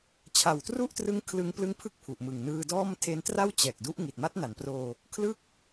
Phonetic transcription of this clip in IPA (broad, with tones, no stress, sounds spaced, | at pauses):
t͡ɕʰ a˨˩ w t r u˥˩ ʔ t r ɯ˦˥ ŋ kʰ l ɯ˧ ŋ p l ɯ˦˥ ŋ pʰ ɯ˥˩ k̚ pʰ u˨˩ ʔ m ɯ˨˩ ŋ n ɯː˧ d ɔː˥˩ m tʰ e˦˥ n t r a˥˩ w t͡ɕ ɛː˨˩ k̚ d u˦˥ ʔ ŋ i˨˩ t̚ m a˦˥ t̚ n a˩˦ n p r oː˧ | kʰ l ɯ˦˥ k̚